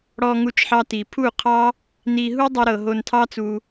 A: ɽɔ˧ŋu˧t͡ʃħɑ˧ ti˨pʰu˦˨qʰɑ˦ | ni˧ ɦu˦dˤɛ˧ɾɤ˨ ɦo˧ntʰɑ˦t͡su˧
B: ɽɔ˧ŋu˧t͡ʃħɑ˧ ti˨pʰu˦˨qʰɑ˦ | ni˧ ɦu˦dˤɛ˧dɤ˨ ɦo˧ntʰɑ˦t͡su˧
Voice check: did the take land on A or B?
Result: A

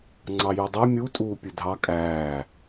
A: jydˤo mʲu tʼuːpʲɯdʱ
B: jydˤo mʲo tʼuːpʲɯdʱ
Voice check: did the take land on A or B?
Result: A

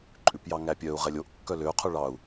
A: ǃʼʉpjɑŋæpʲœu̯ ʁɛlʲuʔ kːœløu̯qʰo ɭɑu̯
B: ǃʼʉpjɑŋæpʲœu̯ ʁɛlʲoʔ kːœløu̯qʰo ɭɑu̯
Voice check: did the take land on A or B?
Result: B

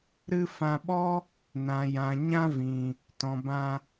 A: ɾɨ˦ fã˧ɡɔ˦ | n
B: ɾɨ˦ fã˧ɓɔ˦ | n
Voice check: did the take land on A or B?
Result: B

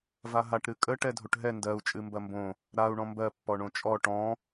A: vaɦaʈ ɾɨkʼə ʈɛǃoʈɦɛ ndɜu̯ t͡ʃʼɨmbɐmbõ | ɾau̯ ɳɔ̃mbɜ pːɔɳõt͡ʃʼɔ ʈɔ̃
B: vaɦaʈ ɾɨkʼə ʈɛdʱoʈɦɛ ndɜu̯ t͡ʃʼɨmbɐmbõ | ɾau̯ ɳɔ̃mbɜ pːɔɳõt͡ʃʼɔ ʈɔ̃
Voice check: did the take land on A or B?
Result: B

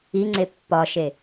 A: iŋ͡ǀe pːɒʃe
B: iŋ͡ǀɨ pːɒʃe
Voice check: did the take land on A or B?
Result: A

